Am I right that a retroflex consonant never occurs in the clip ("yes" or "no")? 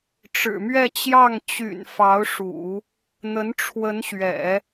no